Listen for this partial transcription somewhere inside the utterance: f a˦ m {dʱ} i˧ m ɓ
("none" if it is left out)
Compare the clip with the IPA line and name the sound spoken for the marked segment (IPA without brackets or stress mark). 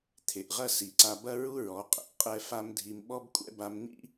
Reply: dʱ